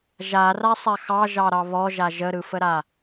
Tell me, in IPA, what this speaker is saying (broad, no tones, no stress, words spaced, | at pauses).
ʒarasˤa xɑʒɑɾɑ βɔʒa ʒəɾɯfəɾa